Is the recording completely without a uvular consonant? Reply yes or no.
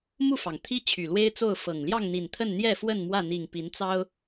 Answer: yes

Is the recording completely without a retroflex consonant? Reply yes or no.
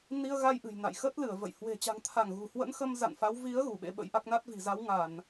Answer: yes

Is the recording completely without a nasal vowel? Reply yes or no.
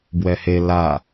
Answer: yes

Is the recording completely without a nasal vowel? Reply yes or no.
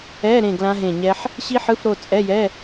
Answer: no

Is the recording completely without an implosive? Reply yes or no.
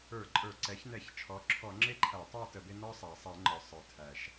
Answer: yes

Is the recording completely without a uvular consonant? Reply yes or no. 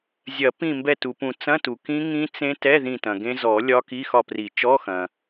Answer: yes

